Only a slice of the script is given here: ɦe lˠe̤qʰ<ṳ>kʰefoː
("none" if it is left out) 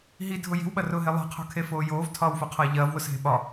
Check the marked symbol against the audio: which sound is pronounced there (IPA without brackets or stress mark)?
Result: o̤